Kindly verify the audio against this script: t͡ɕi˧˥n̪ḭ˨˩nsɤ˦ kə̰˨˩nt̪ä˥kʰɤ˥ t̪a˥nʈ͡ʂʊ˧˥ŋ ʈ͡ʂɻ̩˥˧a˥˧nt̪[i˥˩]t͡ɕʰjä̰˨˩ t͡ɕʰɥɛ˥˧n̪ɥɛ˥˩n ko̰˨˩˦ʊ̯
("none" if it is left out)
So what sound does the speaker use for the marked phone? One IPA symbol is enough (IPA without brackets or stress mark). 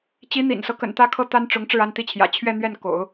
i˥˩